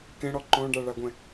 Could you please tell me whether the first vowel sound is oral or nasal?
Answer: nasal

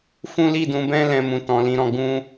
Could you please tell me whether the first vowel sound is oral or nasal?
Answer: nasal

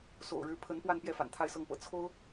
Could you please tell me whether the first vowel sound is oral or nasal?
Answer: oral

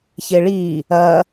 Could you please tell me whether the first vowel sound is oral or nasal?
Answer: oral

